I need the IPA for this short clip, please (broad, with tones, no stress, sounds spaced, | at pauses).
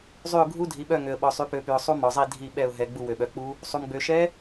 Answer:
zˤ y˦˨ ʊ̯ ɡʱ u˦˥ dʱ i˨˦ ɓ œ˦˨ ŋ ø˨ ə̯ ɓ ɔ˨ sˤ y˨˦ p ø˨˦ p y˨ ʊ̯ sˤ u˦˥ m ɔ˨ zˤ i˦˨ dʱ i˦˨ ɓ ɛ˦˨ ʊ̯ ɦ ɛ˨ ɡ͡b u˦˨ w ø˨ ɓ œ˨ k͡p u˦˥ | sˤ u˨ m ɡ͡b ø˨ ʃ ɛ˦˥